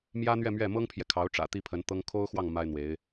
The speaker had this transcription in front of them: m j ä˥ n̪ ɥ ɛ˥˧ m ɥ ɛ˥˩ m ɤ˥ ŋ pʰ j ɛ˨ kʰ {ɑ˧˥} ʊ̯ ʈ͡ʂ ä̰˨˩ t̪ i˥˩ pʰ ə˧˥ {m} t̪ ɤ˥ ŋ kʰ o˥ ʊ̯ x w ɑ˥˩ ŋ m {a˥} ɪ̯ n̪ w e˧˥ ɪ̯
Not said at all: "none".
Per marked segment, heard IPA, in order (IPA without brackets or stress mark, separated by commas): ɑ˧˥, n, a˥